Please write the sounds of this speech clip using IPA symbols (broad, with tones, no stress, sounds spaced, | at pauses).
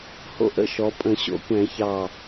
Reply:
h o̰˥ ʔ ə̰˥˧ ʃ ɔ˩˧ pʼ ə̃˧˩˧ ɕ o̰˥˧ kʷ ɛ̃˧˩˧ ç ɑ˧˩